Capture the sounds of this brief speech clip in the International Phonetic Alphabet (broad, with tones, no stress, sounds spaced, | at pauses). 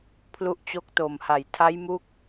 pʰ l u˦˥ ʔ t͡ɕ o˦˥ k̚ t o˨˩ m h a˨˩ j tʰ a˦˥ j m u˦˥ k̚